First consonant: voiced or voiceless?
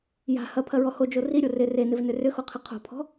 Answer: voiced